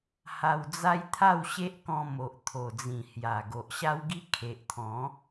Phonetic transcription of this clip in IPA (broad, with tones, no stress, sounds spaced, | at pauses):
h a˧ w d͡z a˦ j t̪ʰ a˥˧ w ɕ e˦ ʔ k ɔ̃˧ m o˨ ʔ t̪ʰ o˨˩ d͡z ĩ˨˩ h j a˨˩ ɡ o˨ ʔ ɕ a˦ w ɡ i˦ kʰ e˨ ʔ t̪ʰ ɔ̃˨˦